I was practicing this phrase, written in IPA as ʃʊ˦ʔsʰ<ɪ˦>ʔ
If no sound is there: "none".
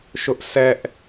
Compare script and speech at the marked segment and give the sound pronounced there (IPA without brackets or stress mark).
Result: ɛ˦